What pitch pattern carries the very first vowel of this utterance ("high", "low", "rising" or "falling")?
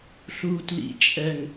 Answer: low